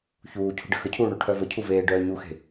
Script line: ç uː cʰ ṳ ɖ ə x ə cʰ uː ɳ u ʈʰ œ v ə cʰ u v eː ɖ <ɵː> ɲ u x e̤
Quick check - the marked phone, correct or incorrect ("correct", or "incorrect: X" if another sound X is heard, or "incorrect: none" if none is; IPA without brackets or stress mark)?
incorrect: œː